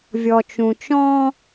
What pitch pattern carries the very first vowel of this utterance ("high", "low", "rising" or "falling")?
low